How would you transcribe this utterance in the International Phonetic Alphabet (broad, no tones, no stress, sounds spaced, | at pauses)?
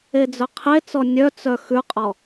e d͡z œ qʰ e t͡s ɔ nʲ œ t͡s œ x ʉ qʼ ɔ